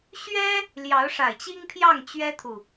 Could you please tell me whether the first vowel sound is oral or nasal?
oral